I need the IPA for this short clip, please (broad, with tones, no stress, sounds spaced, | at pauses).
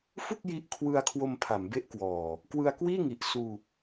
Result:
f u˥˩ k̚ j i˦˥ ʔ kʰ w ɯ˧ a̯ kʰ w o˧ m pʰ a˩˦ m b e˦˥ ʔ k w ɔː˨˩ | k w ɯ˧ a̯ k w iː˥˩ ŋ i˨˩ ʔ s uː˧